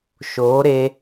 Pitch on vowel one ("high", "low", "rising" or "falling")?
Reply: rising